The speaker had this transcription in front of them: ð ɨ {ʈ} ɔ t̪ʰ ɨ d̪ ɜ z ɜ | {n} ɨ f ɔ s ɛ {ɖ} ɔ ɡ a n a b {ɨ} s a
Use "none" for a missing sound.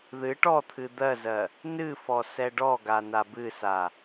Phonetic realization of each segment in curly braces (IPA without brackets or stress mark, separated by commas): ʈ, n, ɖ, ɨ